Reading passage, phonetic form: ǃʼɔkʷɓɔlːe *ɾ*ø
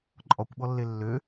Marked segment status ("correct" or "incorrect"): incorrect